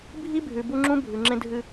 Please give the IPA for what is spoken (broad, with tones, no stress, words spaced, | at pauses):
bʱi˦bʱʉ˨bu˦ŋ͡ǁũ˦ bʱʉ˨ŋ͡ǁẽ˦dʱɨ˦